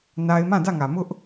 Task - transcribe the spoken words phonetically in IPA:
na˦ɪ̯ mã˦˨dä˦˨ŋä˨mʊ˦ʔ

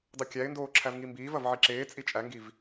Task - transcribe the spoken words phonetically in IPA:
dˤokʲæɪ̯ndoː ǁʰævŋimbiːvɐv ʕiǁeːt͡sʼi t͡ʃʼæŋɡiv

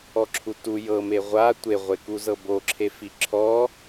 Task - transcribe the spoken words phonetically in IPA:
ɔǁʰutu jɤme ʁʷa tʷeʁʷekuzɤ boǁʰefi ǁʰɔ

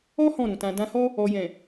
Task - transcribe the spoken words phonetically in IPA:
ɔ˦ hɔ̃˦˨ɾũ˨tã˧ dã˧hɔ˦ | ɔ˨jɛ̃˨

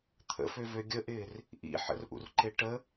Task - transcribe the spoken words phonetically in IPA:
t̪ʰə̰føvø ɡʲəʔɪːr | ʔḭ ħə̰rʔṵrǃe ʈə

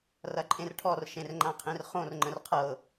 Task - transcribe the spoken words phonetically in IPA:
rɐǃʼẽrʈʰɔr ʃẽrŋ͡ǃãqʰẽrχõr ŋ͡ǃə̃rqʰɤ

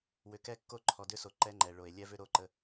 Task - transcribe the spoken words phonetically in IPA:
wʏ˨kɛ˦˨kːo˦ ǃʰɔ˨dʏ˦so˨ ǃɛ˦ŋ͡ǃɛ˨ɭo˨e̯ lʲɛ˦vʏ˦ɾo˦˨ǃə˦

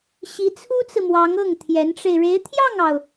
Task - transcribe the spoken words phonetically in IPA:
ɕi˧˥t͡sʰu˥t͡sɹ̩˨mwɑ˧˥ŋ ɤ˥˩ŋ t̪ʰjɛ˧˥nʈ͡ʂe˧ɪ̯ ɻe˧˥ɪ̯t̪ʰjɑ˥˩ŋɑ˩ʊ̯

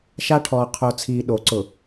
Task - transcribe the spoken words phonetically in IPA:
ʃa˦ʈʰɔː˨ qʰo˨ t͡sʰiː˨ɗo˨˦ ǀʊ˨

